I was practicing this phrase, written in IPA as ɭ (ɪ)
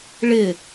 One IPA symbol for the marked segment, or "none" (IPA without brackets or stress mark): ɪ